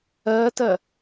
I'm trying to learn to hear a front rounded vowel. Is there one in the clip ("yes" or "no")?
no